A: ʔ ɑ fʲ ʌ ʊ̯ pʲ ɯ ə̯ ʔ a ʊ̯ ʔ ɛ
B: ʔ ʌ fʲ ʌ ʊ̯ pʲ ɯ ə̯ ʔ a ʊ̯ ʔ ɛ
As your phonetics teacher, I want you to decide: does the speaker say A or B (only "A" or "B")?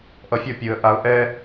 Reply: B